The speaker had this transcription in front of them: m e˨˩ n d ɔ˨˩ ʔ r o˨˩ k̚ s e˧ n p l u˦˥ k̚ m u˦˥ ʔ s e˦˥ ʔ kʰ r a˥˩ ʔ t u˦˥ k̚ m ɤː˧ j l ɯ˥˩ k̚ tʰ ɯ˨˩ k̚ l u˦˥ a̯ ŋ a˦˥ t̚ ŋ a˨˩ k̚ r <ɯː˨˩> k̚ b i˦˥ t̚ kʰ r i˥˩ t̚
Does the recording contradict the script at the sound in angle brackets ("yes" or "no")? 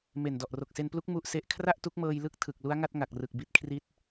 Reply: yes